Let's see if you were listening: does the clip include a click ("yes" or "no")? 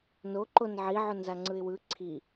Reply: yes